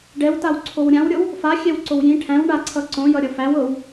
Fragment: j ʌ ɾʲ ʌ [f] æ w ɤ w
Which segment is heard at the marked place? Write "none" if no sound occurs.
f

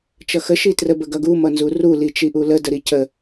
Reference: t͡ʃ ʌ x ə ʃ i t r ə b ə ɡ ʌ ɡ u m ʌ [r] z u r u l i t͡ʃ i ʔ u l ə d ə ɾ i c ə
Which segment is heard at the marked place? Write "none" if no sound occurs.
n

